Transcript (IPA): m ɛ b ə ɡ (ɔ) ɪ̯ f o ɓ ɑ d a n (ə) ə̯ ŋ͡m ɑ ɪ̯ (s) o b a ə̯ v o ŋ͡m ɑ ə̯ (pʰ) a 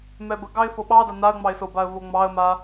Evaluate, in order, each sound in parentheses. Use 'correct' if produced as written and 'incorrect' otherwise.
incorrect: ɑ, incorrect: a, correct, incorrect: m

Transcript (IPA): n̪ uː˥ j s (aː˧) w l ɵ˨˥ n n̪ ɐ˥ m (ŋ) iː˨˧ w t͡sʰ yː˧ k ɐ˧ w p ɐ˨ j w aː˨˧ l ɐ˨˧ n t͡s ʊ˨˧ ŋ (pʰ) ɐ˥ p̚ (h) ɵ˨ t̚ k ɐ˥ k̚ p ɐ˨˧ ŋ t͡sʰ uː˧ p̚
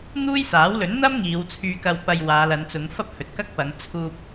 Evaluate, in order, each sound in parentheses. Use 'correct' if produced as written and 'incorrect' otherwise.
incorrect: aː˨˥, correct, incorrect: f, correct

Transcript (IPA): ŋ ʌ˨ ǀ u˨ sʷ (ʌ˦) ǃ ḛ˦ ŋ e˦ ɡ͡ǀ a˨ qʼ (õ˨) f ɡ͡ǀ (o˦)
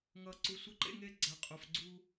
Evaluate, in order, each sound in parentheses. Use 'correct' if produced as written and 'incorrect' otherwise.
correct, incorrect: o˨, incorrect: u˦

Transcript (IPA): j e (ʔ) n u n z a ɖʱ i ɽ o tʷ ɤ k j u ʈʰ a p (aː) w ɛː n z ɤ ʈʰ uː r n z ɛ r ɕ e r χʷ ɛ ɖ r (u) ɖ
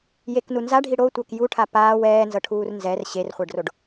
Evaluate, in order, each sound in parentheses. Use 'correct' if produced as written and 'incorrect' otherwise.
incorrect: k, correct, incorrect: o

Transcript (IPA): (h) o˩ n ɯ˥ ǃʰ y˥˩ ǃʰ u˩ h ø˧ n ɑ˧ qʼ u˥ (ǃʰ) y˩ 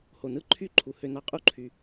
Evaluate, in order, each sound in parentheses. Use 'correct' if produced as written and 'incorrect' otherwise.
correct, correct

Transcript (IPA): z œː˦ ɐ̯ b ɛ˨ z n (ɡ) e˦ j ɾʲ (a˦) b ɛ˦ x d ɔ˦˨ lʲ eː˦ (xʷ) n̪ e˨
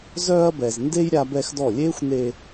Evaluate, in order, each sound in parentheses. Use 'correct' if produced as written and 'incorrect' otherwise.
incorrect: d, correct, correct

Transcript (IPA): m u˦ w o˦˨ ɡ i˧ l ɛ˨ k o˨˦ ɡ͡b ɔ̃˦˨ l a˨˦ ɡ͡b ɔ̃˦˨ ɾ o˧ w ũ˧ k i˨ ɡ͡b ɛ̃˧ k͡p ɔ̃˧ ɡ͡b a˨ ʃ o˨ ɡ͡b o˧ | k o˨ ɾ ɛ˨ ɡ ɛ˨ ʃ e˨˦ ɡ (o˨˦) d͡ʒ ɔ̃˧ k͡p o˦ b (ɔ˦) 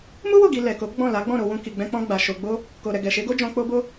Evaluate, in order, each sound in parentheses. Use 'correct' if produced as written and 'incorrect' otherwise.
incorrect: o˦, incorrect: o˦

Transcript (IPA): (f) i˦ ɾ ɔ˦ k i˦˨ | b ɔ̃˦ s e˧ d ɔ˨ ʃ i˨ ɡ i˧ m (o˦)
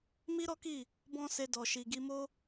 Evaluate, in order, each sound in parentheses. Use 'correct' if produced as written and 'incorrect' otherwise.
incorrect: m, correct

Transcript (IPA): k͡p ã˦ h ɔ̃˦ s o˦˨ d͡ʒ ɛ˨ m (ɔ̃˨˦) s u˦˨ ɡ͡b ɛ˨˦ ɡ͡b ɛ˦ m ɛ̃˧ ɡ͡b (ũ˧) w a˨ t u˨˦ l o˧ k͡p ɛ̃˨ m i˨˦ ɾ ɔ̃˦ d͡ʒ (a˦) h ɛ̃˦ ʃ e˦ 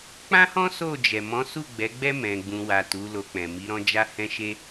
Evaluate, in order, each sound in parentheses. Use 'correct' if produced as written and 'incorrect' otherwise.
correct, correct, correct

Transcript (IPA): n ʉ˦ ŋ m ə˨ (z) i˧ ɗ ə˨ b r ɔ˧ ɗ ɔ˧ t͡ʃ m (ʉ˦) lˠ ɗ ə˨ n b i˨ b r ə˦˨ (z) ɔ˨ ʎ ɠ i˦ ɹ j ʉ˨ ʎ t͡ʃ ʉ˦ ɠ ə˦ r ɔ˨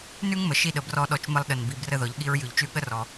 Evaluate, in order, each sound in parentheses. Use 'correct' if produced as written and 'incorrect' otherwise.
incorrect: ʃ, incorrect: ə˦, incorrect: ð

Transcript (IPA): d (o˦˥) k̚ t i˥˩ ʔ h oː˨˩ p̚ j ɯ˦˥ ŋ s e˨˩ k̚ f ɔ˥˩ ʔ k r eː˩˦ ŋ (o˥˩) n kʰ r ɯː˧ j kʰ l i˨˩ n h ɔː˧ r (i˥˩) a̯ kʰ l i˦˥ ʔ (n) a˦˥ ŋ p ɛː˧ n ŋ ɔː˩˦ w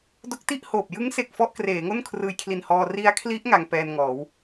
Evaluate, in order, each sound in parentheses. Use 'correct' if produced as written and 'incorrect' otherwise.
correct, correct, incorrect: i˦˥, incorrect: ŋ

